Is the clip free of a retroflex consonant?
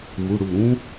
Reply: no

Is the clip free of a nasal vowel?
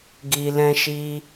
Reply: no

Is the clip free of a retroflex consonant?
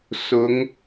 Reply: yes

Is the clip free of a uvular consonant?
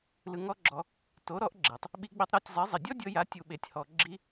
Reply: yes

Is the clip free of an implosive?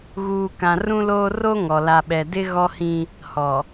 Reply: no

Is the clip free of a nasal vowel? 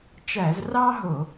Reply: yes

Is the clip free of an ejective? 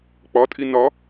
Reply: no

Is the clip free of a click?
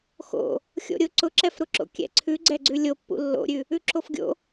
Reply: no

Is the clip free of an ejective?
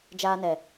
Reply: yes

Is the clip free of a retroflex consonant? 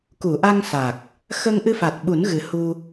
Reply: yes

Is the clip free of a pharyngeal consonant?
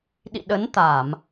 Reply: yes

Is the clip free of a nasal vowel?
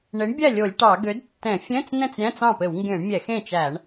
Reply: no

